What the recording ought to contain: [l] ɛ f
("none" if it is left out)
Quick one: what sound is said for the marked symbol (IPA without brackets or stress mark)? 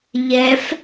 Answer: ʎ